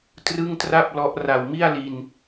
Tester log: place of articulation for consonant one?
alveolar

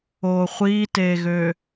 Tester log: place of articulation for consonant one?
uvular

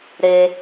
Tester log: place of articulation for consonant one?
alveolar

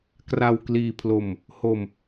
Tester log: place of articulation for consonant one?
velar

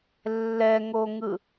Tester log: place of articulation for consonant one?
alveolar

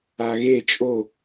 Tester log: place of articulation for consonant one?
velar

